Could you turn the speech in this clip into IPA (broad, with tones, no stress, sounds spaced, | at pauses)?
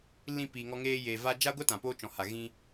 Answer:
l ĩ˧ p iː˨ ŋ ɔ˧ ŋ eː˧ j eː˨ v a˧ d͡ʒ a˦ ɡʷ ɛ˦ t ã˨ p oː˧ t͡ʃ ɔ̃˨ h a˨ ɣ ĩ˧